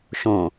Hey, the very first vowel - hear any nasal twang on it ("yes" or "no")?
yes